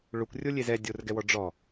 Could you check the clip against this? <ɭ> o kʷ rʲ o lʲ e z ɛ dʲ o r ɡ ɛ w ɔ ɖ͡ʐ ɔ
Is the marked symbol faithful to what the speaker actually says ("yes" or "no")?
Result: yes